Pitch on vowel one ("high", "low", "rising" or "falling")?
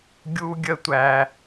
high